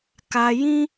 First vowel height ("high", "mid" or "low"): low